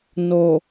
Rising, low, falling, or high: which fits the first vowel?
low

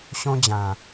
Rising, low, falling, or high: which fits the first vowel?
high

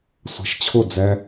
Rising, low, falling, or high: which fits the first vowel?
low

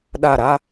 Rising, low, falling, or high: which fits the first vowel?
falling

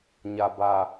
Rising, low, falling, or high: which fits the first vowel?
low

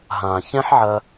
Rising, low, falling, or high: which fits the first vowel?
low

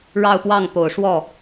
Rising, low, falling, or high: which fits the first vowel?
falling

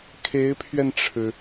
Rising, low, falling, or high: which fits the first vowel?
rising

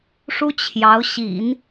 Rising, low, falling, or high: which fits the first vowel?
high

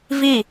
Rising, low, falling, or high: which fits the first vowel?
falling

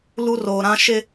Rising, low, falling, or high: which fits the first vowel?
high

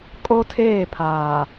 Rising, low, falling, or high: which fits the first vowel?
high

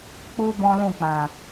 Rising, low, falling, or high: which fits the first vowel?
high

